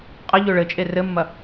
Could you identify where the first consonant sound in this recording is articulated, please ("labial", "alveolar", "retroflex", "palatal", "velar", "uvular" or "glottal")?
uvular